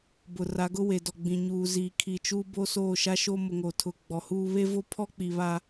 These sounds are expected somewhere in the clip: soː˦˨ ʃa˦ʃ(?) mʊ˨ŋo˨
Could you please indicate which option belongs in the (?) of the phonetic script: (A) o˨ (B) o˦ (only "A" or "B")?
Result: B